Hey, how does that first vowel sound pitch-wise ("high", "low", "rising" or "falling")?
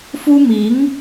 high